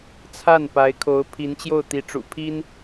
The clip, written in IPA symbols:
t͡sʰ a˥˩ n p a˧˥ ɪ̯ kʰ o˧˥ ʊ̯ pʰ i˧˥ n t͡ɕ j o˥˩ ʊ̯ t̪ i˧˥ ʈ͡ʂ ṵ˨˩ pʰ i˥ n

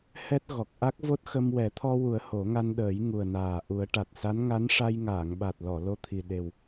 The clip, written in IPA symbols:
h ɛ˦˥ t̚ ɣ ɔ˨˩ k̚ ʔ a˦˥ k̚ v o˦˥ t̚ x ə˧ m w ɛ˨˩˦ t̪ʰ ɔ˧ w u˨˩˦ ə̯ h o˨˩˦ ŋ a˧ n ɗ əː˨˩˦ j ŋ u˨˩ ə̯ n aː˨˩ ʔ u˨˩˦ ə̯ ʈ a˨˩ t̚ s a˧˥ n ŋ a˧˥ n ʂ a˧ j ŋ aː˨˩˨ ŋ ɓ a˨˩ t̚ l ɔ˨˩˨ l o˧˥ t̪ʰ i˨˩ ɗ e˨˩ w

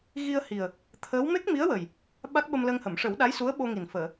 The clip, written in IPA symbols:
ɣ i˧ ə̯ h i˨˩ ə̯ | t̪ʰ əː˧˥ w m e˦˥ k̚ m i˧˥ ə̯ w ə˨˩ j | ɓ a˦˥ k̚ ɓ ə˧ m l ə˧ ŋ h ə˨˩˨ m ʂ ə˨˩˦ w ɗ a˧˥ j s u˧˥ ə̯ ɓ o˧ ŋ i˨˩ n f əː˨˩˨

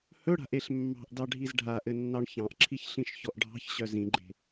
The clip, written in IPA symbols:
h ɵ ɽ a̤ ʔ e ɬ mː ɑ̤ ʔ d ɑ ɖʱ i z ɖʱ a ʔ ɘ nː ɑ ɳ ç ɑ̃ ʔ ǁʰ i ç ɬ ĩ ʃ ç ɔ ʔ ɖʱ ɑ̤ ç ɕ œ z ĩ ɡ͡ǃ e̤

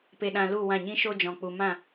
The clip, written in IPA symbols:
p e˧ ɗ ã˧ l u˦˨ w ã˦˨ ɲ ĩ˦ ʃ o˦ d͡ʒ ɔ̃˨ k͡p u˨ m ã˦˨

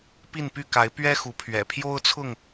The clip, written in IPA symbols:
p i˥˨ n p y˥˨ k a˨˦ ɪ̯ p ɥ ɛ˦ x u˨˦ pʰ ɥ ɛ̰˨˩ pʰ j o˦ ʊ̯ t͡sʰ ʊ˥˨ ŋ

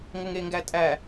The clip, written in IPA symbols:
ŋ ə ŋ e ŋ ɡ æ tʼ æ

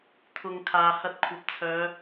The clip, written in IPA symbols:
t̪ʰ ʊ˨ ŋ kʰ aː˨ h ɐ˧ t̚ kʷʰ ɐ˨ p̚ t͡sʰ œː˨˧

